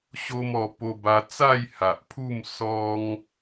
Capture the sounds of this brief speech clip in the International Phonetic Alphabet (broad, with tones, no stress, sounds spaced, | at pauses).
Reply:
ɕ o˦ m ɔ˧ p o˧ b a˧ t͡s a˥˧ j h a˨ ʔ pʰ u˥˧ m s ɔ˦ ŋ